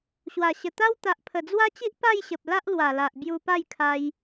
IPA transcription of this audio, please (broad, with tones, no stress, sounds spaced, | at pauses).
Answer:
ɕ w a˨˩ ɕ ə˨˩ t̪ a˦ w t̪ a˨ ʔ pʰ ə˨˩ d͡z w a˦ t͡ɕ i˦ ʔ p a˥˧ j ɕ ə˨ p̚ l a˦ ʔ l w a˨˩ l a˨ ʔ b j u˧ p a˥˧ j kʰ a˧ j